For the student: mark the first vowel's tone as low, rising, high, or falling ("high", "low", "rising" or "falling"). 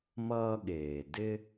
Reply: high